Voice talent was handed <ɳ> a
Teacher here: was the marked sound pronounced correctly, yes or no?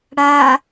no